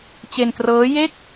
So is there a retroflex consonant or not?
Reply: no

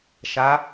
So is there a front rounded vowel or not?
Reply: no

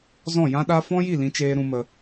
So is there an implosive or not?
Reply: yes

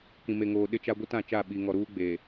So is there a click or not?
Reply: no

